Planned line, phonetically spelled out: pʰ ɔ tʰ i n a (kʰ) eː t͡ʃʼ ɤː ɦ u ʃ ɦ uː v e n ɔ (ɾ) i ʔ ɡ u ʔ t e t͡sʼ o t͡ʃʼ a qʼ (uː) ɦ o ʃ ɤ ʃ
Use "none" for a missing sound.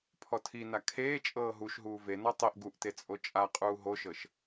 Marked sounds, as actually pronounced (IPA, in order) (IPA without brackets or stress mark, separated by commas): kʰ, tˤ, uː